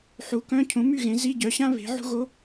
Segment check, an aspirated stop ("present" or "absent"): present